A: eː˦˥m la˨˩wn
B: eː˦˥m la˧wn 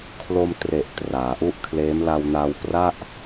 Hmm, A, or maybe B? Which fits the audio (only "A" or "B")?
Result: B